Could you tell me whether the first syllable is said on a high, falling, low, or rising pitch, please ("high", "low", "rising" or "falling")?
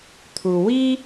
low